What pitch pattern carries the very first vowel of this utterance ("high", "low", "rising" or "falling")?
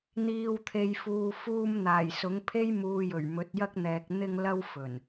low